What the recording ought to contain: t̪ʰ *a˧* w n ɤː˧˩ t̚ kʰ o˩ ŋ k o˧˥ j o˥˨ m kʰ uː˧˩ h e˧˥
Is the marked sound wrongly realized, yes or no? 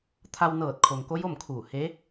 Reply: no